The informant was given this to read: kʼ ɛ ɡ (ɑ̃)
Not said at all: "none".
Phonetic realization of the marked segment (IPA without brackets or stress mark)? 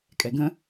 ə̃